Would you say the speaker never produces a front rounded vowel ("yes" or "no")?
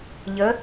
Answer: yes